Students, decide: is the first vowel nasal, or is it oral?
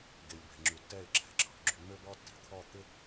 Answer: oral